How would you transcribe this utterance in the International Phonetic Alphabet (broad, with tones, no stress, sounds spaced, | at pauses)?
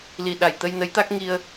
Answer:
l i˨˩ ɗ a˨˩ j t̪ ə˧ j n ə˧˥ j t̪ a˦˥ k̚ ŋ i˧ ə̯